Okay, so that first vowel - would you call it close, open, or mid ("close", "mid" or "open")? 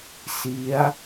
close